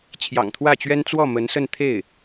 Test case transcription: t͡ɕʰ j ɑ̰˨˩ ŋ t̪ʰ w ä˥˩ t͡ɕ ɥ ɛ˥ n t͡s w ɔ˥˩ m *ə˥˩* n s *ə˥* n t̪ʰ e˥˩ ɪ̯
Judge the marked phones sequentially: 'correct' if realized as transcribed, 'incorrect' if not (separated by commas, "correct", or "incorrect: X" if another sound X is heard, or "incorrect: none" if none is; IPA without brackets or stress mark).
incorrect: ə˧˥, incorrect: ə˥˧